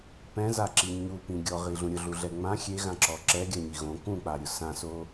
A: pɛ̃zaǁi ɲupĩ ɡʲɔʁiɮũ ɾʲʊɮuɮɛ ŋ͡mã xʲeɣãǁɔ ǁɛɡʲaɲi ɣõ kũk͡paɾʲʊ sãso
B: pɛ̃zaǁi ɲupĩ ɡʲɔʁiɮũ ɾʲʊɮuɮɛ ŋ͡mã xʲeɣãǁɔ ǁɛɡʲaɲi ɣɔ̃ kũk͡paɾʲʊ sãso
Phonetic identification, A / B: A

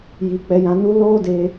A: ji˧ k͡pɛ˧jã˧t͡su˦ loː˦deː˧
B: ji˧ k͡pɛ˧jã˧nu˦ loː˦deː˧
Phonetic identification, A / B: B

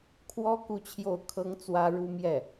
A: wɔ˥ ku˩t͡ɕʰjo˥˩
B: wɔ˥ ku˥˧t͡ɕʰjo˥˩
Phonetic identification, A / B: B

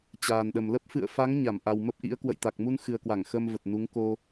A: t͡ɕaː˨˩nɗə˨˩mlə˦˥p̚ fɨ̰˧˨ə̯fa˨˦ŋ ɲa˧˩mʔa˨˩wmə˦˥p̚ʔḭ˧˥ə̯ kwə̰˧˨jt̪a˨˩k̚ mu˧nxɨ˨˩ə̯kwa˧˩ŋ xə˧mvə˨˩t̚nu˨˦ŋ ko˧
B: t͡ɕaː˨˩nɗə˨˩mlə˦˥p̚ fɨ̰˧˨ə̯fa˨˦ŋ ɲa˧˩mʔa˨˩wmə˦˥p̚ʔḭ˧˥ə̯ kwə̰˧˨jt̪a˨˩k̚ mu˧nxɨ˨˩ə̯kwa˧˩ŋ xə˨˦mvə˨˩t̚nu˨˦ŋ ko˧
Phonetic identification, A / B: A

